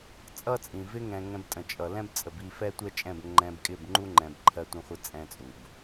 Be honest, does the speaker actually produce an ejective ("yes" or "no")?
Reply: yes